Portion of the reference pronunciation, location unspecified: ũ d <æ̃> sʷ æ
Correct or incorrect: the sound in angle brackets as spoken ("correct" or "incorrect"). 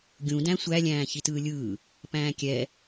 correct